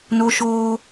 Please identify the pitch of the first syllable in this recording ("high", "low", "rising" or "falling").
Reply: high